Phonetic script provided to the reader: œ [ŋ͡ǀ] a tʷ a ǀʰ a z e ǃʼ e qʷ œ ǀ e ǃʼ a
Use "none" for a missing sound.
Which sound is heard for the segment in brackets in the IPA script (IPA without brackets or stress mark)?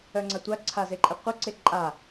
ŋ͡ǀ